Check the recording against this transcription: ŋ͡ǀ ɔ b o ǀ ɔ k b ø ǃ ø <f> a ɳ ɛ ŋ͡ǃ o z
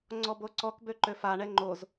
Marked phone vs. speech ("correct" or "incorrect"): correct